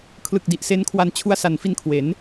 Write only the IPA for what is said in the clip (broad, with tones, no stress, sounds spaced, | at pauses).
kʰ l ɯ˨˩ k̚ d i˨˩ ʔ s e˦˥ n kʰ w a˧ n t͡ɕʰ u˦˥ a̯ s a˨˩ n f i˧ n kʰ w e˩˦ n